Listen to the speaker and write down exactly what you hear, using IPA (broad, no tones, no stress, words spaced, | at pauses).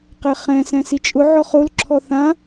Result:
qɛχɛ̃ sɛ̃sit͡ʃʼʊ ʕɔχol ǁʰɔθã